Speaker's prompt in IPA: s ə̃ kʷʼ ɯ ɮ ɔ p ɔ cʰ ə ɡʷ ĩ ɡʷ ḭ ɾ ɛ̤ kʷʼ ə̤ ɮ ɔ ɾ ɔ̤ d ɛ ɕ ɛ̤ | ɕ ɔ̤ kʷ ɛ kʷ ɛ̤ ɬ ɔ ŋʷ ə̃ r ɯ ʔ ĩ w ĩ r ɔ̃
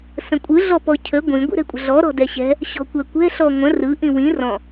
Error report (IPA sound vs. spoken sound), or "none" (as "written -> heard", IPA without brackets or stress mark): none